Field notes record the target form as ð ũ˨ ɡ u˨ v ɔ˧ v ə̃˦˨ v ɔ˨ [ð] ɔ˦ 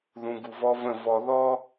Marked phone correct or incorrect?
correct